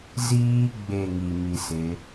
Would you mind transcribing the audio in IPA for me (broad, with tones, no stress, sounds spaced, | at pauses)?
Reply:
z iː˦ ɡ͡b e˦˨ ŋ i˨ m i˨ s ɪ˨˦